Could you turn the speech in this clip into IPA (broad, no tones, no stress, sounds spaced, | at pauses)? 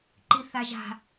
ǃ i θ a ʒ a̤